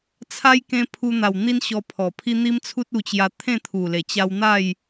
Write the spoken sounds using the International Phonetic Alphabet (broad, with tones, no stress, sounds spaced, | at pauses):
t͡sʰ a˦ j k ẽ˧ pʰ u˧ n̪ a˨˩ w n̪ i˦ n ɕ ɔ˧ pʰ ɔ˨˩ pʰ i˦ n̪ i˦ m t͡sʰ u˦ t̚ u˧ t͡ɕ j a˧ t̪ʰ ẽ˥˧ t̪ʰ u˨˩ l e˨˩ t͡ɕ a˧ w n̪ a˥˧ j